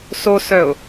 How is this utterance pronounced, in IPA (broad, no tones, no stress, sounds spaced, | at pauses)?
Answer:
s o s œ ʊ̯